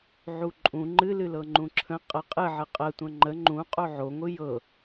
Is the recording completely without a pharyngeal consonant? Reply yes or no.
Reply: no